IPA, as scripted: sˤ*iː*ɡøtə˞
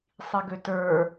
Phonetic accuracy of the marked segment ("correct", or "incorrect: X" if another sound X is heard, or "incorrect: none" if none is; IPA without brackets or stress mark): incorrect: i